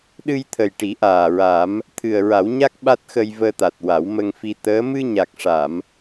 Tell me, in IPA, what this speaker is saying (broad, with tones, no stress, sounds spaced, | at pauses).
ɗ ɨ˧ j t̪ʰ ə˨˩ j ʈ i˨˩˦ ʔ aː˨˩ ɹ a˨˩˦ m | t̪ʰ ɨ˨˩ ə̯ ɹ a˨˩˦ w ɲ a˦˥ k̚ ɓ a˦˥ t̚ x ə˧ j v əː˧ t̪ a˨˩ t̚ w a˨˩˦ w m ə˧ ŋ f i˧ t̪ əː˧˥ m ɨ˧ ɲ a˨˩ k̚ ʂ a˨˩˨ m